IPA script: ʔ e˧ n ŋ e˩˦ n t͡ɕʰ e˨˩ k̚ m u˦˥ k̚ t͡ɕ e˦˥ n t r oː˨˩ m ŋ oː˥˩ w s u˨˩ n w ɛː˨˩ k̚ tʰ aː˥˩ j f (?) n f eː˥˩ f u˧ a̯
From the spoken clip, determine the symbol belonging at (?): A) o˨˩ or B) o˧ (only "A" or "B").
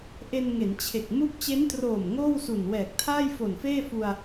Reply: A